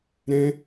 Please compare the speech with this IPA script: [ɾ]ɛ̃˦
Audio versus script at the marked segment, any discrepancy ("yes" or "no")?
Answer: no